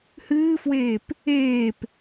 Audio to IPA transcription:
h ɨː f w eː p | eː p

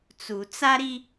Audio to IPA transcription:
t͡s u˨ t͡s a˦ ɾ i˦

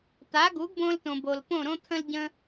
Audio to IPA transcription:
t̪ a˩˥ ɡ u˩˥ ɡ b õ˧ l t õ˩ b o˩ l p õ˥˩ ɾ õ˥ t̪ʰ ə̃˥ l ɟ ə̃˧

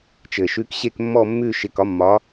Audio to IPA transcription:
t͡ʃ ɘ˨˩ ʃ ʉ˧˥ k ɕ e˥˧ k mː ɔ˥˧ mː ʉ˥˧ ʃ ɪ˧˥ k ɒ˧˥ mː ɒ˧˥

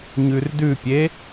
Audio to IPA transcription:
ɲ ʉ r d ʉ pʲ e

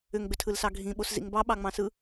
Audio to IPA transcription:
ʏ ŋ ɡ͡b ʏ tʰ ɯ l s ɑ ɡʱ ĩ ɓ o s z ḭ ŋ b ɑ ɓ ɑ ŋ͡m ɑ̃ s ɯ

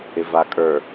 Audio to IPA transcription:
ɪ v a kʼ ə˞

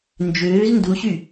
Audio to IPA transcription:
n d͡ʒ øː z n d u ɕ y

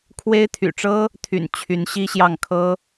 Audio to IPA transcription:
kʰ w e˥ ɪ̯ t̪ʰ y̰˨˩ ʈ͡ʂ ɤ˥ | t̪ʰ y̰˨˩ n t͡ɕʰ y˧˥ n ɕ i˥ ɕ j ɑ˥˩ ŋ kʰ ɤ˥

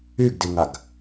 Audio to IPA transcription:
y ɡ d i ŋ a ɡ

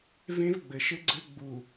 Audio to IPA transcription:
v ẽ˦ v ɡ͡b ɘ˨ ʃ ɘ˦ ɡ͡ǀ ɘ˦ ɡ͡b u˨

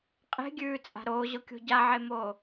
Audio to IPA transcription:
qʼ e̤ ɡʲ ʉː t͡sʼ a̤ ɾ oː ʑ o kʲ o̤ ɟ a ʕ e m oː

